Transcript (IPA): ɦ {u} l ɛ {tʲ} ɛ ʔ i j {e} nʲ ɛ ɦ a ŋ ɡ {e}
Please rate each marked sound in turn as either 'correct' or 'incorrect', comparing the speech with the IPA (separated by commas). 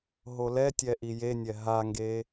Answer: incorrect, correct, correct, correct